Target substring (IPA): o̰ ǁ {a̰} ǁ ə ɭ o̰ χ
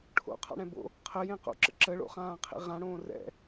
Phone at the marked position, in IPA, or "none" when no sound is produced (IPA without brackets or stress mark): ə̰